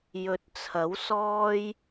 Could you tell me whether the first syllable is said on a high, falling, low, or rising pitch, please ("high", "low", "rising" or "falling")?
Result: low